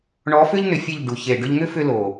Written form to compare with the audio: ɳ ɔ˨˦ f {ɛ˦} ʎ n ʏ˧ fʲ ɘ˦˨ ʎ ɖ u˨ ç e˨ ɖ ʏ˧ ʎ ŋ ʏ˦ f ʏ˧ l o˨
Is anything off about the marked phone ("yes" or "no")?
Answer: yes